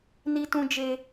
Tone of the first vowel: high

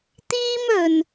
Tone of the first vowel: high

